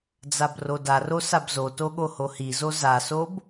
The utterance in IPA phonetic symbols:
d͡z a b r o d a r o s a b z o t o ɠ o h o h i z o z a s o b

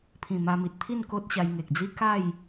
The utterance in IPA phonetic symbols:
pʰ ĩ˨˩ m a˧ m i˨ t̚ t̪ʰ i˥˧ n k o˦ t̚ ɕ a˧ j ŋ e˨ k̚ d͡z i˦ k a˥˧ j

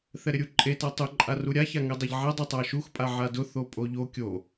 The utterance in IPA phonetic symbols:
θ ɛ ɾ ɪ ɾʲ u ǃʼ e t a tˤ ʊ ǃʼ a r u ɾʲ a ç a ŋ ɛ dˤ a ʎ ʕ ɛ dˤ ʊ tˤ a ʃ u x pʼ a ʕ a d ʊ θ o pʼ o ʎ o kʲ o

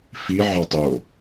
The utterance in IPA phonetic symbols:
f i ʕ ɑ tˤ o

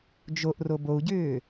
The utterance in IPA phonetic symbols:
d͡ʒ o ʔ r o b o u̯ ɟ ʏː

